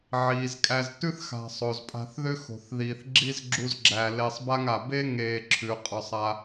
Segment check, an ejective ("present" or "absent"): present